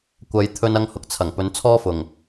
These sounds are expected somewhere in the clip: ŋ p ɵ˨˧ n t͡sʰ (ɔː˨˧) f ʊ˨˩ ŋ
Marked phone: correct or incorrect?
incorrect